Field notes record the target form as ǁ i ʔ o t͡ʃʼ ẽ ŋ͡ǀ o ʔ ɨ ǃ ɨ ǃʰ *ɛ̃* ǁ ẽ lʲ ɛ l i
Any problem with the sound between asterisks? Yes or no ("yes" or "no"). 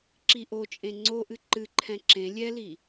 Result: no